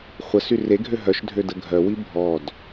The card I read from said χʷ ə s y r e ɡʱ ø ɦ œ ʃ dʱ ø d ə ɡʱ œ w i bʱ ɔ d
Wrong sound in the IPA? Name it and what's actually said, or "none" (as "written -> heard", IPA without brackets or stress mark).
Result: none